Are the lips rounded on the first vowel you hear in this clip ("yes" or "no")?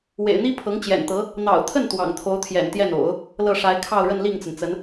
no